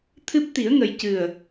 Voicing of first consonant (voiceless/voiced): voiceless